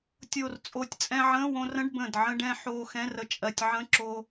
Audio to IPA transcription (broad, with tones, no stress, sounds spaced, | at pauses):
tʲ o˨˩ r t͡sʼ o˨˩ tʲ t͡sʼ ɛ̃˧ ʕ ə̃ː˧˥˧ w õ˧ r ə̃˧˥˧ ɖ b ə̃ː˨˩ d ʕ ə̃˧ ɖ ɛ̃˧ ħ oː˧ x ɛ̃˧˥˧ r ə˧ t͡ʃʼ ɜ˨˩ tʲ ʕ ə̃˧˥˧ ǁ oː˧